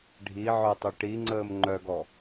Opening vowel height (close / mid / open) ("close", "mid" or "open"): close